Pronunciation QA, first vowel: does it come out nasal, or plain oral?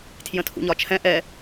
nasal